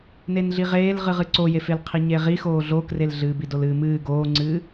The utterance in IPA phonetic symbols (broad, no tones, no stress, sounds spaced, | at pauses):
n e n ɮ i ʁ eː l ʁ ɨ ʁ ɨ ǀ o j e f e l qʰ i ɲ e ʁ i x oː ɮ o k r e l ɮ ɨː b i d o l ɨː m ɨː ɡ oː ŋ͡ǀ ɨː